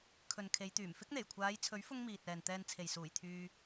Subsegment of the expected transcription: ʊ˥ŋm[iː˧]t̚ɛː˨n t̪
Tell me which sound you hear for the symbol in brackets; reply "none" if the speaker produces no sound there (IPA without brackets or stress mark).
iː˨